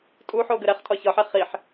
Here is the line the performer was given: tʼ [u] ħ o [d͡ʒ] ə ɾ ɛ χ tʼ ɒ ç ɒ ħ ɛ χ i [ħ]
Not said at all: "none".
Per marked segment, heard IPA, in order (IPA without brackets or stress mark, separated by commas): u, ɡ, ħ